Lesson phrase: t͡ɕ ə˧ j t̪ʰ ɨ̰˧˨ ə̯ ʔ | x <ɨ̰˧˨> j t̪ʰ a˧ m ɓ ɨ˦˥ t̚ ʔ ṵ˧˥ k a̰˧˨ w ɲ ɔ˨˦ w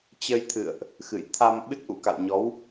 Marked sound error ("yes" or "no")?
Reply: no